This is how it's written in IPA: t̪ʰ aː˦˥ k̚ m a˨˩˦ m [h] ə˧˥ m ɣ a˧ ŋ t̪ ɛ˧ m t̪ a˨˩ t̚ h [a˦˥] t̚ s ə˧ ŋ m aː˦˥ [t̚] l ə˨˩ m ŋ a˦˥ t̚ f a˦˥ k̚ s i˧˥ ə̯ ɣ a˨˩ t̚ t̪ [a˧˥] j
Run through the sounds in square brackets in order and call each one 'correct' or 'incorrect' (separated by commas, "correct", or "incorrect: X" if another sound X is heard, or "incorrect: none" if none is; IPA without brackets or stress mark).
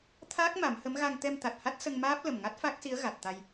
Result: correct, correct, incorrect: p̚, incorrect: a˧